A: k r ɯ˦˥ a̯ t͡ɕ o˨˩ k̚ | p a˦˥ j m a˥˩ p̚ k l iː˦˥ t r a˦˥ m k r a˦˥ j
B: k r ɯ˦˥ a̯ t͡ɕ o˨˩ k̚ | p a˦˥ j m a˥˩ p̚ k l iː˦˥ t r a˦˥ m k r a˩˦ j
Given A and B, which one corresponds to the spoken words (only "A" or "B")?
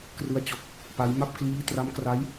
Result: A